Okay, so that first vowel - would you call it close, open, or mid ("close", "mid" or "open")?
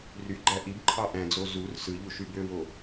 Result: close